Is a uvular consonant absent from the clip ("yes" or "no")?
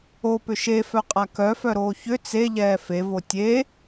no